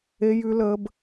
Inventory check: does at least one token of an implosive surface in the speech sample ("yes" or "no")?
no